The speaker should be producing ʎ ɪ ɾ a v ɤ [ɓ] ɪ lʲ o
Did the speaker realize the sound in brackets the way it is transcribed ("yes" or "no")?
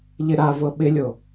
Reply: yes